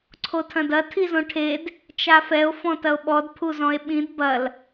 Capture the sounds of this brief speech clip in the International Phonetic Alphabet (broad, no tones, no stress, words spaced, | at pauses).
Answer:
ǀʰotʰɐ̃dɐ tʰizõʈʰed | t͡ʃafɛo̯ fɔ̃tɐo̯ɓɔd pʰuzɔ̃e̯ɓĩd bɐl